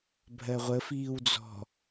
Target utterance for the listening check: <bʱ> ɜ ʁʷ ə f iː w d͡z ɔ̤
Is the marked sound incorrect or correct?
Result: correct